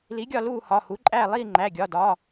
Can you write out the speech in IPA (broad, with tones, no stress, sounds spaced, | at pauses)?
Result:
l i˩˥ ɡʲ ɒ˦˨ l uː˦˨ h ɒ˩˧˩ h u˩˥ ǃʼ æː˦˨ lˠ iː˦˨ ŋ͡ǃ æ˩˧˩ ɡʲ ɒ˩˧˩ d ɒ˩˧˩